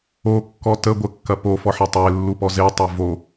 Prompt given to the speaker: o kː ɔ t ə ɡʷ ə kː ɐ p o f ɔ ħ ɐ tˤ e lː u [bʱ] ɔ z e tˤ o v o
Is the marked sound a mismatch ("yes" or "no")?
yes